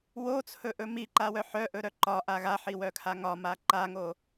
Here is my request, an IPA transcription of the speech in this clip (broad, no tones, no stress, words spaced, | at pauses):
wot͡sʰɵʔɵ miǃawœ ħœʔɵɾœ ǃɒʔa ɣaħiwœkʰa ŋɒma ǃaŋo